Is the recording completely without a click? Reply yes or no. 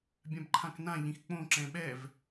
no